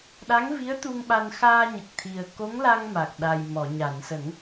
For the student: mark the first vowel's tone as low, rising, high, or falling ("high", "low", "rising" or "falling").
rising